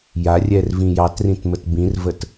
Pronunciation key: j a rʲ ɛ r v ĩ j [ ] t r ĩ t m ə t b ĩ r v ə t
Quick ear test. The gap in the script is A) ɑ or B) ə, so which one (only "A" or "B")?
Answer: A